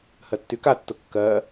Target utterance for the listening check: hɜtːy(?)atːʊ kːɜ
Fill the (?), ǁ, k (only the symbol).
k